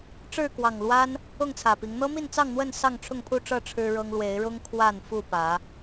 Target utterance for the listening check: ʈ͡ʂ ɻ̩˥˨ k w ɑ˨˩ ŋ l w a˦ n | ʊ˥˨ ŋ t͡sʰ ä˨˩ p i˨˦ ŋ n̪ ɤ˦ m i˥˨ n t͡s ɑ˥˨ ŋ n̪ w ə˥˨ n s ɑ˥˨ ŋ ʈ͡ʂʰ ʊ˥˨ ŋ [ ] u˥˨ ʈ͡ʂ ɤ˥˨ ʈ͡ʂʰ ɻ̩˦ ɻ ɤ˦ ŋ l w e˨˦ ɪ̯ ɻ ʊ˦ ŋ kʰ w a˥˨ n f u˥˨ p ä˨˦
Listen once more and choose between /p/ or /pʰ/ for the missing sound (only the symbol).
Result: pʰ